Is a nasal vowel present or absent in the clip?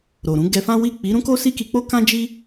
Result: present